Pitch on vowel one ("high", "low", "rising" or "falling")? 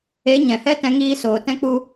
rising